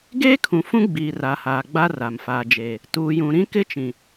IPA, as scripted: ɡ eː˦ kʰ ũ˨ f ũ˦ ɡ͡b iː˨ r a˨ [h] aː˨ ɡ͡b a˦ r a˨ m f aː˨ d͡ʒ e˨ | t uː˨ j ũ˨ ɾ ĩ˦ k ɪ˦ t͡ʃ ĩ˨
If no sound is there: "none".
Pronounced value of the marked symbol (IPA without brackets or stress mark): h